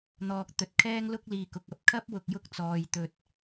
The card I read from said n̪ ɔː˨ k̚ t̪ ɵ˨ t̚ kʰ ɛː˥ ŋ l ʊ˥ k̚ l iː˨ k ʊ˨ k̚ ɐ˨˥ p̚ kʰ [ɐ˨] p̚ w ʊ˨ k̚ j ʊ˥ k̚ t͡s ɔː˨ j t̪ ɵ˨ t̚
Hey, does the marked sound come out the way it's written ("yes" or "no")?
no